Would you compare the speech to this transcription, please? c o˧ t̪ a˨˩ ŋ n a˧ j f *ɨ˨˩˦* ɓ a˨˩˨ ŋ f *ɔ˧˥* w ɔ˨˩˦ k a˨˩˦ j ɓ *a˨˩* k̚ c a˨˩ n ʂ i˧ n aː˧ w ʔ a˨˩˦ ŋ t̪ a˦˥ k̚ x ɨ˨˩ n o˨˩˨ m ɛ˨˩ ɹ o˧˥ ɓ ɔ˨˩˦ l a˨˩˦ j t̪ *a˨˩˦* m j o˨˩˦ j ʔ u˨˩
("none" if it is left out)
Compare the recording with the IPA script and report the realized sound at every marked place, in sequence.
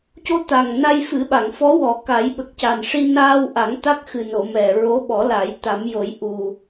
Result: ɨ˨˩˦, ɔ˧˥, ə˨˩, a˨˩˦

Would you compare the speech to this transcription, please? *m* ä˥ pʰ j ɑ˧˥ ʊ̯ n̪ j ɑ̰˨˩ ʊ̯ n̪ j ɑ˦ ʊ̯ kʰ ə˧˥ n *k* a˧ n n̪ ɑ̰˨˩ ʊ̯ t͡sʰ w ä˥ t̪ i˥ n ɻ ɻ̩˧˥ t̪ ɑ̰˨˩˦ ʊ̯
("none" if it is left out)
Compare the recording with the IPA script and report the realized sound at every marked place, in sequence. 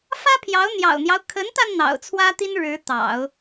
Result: f, t̪

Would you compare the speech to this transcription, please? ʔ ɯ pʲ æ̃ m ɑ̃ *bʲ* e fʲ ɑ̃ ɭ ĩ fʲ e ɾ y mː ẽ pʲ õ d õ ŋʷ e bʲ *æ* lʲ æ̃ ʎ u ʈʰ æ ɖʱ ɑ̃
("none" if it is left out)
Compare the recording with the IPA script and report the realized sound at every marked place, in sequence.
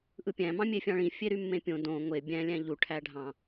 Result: mʲ, æ̃

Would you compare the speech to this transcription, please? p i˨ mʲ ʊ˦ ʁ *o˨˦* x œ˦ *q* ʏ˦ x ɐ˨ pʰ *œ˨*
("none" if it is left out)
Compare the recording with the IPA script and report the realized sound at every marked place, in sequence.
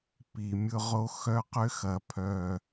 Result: o˦, q, œ˨

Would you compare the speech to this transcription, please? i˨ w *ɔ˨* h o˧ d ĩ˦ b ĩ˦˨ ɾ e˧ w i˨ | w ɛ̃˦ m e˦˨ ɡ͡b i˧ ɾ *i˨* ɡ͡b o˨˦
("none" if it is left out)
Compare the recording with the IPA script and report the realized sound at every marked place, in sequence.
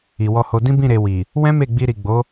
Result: ɔ˧, i˨

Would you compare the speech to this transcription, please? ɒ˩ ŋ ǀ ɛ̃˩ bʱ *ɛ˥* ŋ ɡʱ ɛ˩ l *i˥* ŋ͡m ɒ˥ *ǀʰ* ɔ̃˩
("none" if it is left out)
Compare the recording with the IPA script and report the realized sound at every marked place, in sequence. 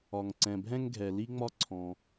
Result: ɛ̃˥, i˥, ǀʰ

